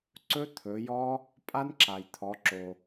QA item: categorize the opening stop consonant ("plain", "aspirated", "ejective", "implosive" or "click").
click